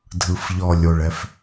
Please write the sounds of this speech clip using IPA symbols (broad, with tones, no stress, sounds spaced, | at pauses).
dʱ ɯ˨ f ʎ ɔ˨ lʲ o˨ ɭ ɛ˦ f